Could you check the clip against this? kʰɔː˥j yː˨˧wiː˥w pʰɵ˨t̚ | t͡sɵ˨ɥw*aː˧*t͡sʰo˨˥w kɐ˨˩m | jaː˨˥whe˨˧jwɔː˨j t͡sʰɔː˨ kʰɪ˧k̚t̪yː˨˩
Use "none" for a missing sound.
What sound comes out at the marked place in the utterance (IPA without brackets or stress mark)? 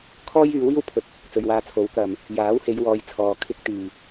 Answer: aː˧